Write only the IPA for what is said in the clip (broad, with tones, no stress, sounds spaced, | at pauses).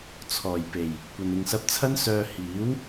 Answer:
t͡sʰ ɔː˨˩ j p e˨˩ j | kʷ ɐ˨ n ɪ˨ ŋ s ɐ˧ p̚ t͡sʰ ɐ˥ n s œː˧ h iː˨˥ w